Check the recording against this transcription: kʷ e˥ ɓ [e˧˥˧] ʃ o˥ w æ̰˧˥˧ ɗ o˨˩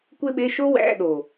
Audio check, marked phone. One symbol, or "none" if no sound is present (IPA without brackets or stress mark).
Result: e˧˥˧